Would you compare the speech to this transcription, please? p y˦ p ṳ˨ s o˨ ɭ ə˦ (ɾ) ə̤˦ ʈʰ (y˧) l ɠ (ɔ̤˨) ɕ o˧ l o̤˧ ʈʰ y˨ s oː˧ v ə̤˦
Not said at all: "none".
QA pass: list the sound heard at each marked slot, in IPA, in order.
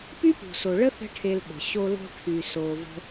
θ, e˧, ə̤˨

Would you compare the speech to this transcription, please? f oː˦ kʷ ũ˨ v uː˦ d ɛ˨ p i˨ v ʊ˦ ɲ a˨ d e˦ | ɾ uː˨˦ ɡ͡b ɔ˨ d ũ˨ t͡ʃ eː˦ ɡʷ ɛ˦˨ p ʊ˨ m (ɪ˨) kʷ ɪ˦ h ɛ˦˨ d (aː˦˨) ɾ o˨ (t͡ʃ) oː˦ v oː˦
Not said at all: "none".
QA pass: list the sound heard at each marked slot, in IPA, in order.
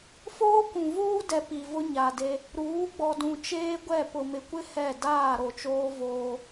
ɪ˨, aː˦˨, t͡ʃ

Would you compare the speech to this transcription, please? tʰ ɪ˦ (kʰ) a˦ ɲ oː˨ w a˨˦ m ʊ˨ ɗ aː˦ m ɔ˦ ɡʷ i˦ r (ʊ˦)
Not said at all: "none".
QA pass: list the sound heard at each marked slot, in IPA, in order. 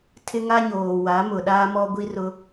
ŋ, ʊ˦

